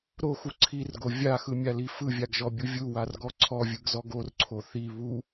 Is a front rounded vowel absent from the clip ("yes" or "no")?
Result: yes